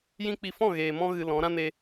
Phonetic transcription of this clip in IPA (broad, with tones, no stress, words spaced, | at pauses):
jĩ˦k͡pi˧ fɔ̃˦˨ɣeː˨mɔ̃˧ ɣɨ˧ lɔ̃˨˦ ɾã˦ne˧